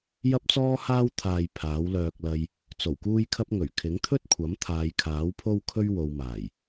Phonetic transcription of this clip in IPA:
j ɐ˥ p̚ t͡s ɔː˥ h aː˥ w t̪ʰ aː˨ j pʰ aː˨˥ w l œː˧ k̚ l ɐ˧ j | t͡s o˨˩ w k uː˥ j kʰ ɐ˥ p̚ ŋ ɵ˨˩ ɥ kʰ ɪ˨˥ ŋ t̪ʰ ɵ˥ t̚ kʷʰ ɐ˨˥ m t̪ʰ aː˨˧ j kʰ aː˨˥ w pʰ o˥ w kʰ ɵ˥ ɥ w o˧ w m aː˨˩ j

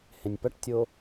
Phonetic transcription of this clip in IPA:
h ẽ nʲ p ɐ ʈ tʲ o

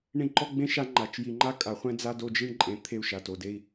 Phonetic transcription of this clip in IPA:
ɳ ĩ˦ ǃ ɔ˦ ɡ͡b ẽ˦ ʃ a˦ ŋ͡ǃ a˨ t͡ʃ j i˨ ŋ͡ǃ a˦ kʼ a˨ χʷ ɛ̃˦ d͡z a˦ d o˦˨ d͡ʒ i˦ ɳ ǃʼ ẽ˨ t̪ʰ e˦˨ u̯ ʃ a˨ t o˨ d e˦ i̯

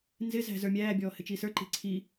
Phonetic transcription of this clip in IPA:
n z ɪ z æ̤ z ə˞ mʲ æː bʲ ɔː h ɪ t͡ʃ i s ə˞ ǃ i̤ ǀʰ i

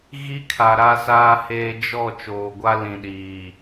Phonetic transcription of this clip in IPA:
ɣ i˦ kʰ a˨ ɾ a˦ s aː˦ h eː˦ d͡ʒ ɔ˦˨ t͡ʃ oː˨ ɡʷ a˦ l ĩ˨ ɗ iː˨

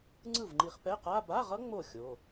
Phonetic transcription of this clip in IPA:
ŋ͡ǀ ɯ˥˩ v ŋ͡ǃ i˧ χ p ɛ˧˥˧ q a˧˥˧ b a˧˥˧ ʁ ʌ˦˥ ŋ͡m o˥˩ xʲ o˩˧˩

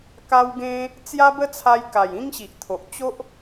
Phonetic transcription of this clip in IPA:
k a˦ w ɡ ẽ˦ | t͡s j a˦ b ə˦ t͡sʰ a˧ j k a˨˩ j ĩ˦ ŋ ɕ i˨ ʔ t̪ʰ o˨ ʔ t͡ɕ o˦ ʔ

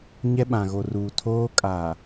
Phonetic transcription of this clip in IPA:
ɲ ɛ˦ ɓ ã˨ ɣ o˨ r uː˨ tʰ oː˦ kʼ a˨

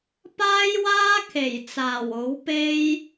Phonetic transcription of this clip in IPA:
p aː˥ j w aː˥ kʰ e˨˩ j t͡s aː˨˩ w o˨˥ w p e˥ j

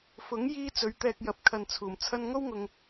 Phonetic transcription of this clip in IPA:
f ʊ˨˥ ŋ j iː˥ t͡s ɵ˨˧ ɥ t̪ ɛː˧ k̚ j ɐ˨˥ p̚ kʰ ɐ˨ n t͡sʰ uː˨˩ m t͡sʰ ɐ˥ n ŋ o˥ w ŋ ʊ˨ ŋ

